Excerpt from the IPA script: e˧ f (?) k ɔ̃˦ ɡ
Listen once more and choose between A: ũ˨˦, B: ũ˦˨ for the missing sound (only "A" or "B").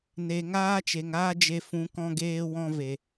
A